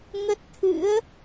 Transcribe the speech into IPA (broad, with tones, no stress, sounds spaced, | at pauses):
ŋ ə˦˥ t̚ t̪ʰ ɨ̰˧˥ ə̯